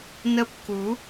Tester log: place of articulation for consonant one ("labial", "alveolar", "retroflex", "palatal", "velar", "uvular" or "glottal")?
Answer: alveolar